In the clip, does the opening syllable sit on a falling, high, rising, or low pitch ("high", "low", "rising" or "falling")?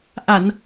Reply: low